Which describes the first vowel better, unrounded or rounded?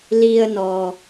unrounded